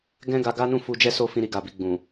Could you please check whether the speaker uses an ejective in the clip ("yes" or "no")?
no